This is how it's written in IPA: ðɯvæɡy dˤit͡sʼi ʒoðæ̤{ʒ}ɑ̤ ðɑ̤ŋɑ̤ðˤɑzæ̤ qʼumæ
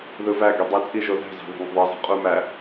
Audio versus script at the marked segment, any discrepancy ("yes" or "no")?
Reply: yes